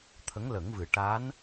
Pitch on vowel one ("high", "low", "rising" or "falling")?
rising